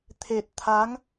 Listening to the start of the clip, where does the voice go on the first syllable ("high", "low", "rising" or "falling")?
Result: low